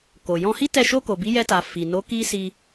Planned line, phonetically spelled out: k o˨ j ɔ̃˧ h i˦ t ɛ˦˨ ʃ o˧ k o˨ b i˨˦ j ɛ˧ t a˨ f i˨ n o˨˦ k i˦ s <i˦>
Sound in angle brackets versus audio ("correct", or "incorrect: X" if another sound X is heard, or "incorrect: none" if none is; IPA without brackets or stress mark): incorrect: i˧